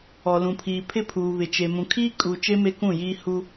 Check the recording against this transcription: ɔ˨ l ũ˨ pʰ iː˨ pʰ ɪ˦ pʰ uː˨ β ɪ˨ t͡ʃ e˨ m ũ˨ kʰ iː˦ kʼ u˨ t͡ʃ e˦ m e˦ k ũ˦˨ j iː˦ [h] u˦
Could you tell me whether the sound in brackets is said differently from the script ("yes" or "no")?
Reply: no